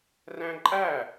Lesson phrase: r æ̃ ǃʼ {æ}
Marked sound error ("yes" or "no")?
no